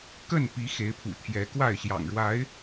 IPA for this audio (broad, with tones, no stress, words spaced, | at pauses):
kə˥˨npi˨˦ xe˨˦ɪ̯pʰṵ˨˩ t̪ʰjɛ˨˦kwa˥˨ɪ̯ ɕjɑ̰˨˩ŋɻwa˨˦ɪ̯